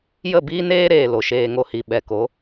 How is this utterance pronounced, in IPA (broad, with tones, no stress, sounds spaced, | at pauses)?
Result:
j ə˦˨ b iː˦ n eː˦ ɾ eː˨ l o˨ ʃ eː˧ ŋ o˧ h i˨ ɓ ɛ˨ k o˨˦